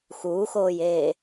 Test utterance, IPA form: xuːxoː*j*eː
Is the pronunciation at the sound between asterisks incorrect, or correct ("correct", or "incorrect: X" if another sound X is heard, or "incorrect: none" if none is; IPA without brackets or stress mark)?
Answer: correct